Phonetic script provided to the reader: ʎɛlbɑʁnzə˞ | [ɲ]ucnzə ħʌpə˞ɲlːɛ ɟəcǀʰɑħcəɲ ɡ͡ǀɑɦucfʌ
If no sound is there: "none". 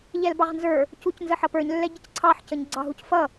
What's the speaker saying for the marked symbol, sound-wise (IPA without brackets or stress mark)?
c